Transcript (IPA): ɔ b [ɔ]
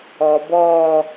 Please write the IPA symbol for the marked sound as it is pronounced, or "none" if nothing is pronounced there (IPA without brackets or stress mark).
ɔː